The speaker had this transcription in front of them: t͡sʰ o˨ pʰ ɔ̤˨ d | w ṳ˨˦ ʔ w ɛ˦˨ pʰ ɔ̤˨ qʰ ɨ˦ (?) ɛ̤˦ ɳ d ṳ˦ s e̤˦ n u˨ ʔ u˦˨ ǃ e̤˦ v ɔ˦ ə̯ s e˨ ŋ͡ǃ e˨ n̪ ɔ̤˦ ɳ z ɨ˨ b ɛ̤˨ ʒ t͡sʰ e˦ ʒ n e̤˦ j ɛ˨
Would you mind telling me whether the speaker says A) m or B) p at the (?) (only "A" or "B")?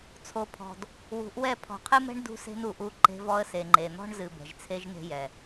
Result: A